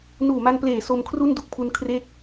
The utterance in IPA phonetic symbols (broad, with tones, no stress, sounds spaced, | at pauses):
n uː˨˩ m a˧ n p l eː˨˩ s o˧ m kʰ r u˥˩ n d u˥˩ k̚ pʰ u˧ n kʰ r e˦˥ k̚